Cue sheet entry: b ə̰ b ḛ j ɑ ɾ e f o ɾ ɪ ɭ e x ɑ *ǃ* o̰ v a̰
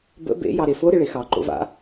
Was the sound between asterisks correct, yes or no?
yes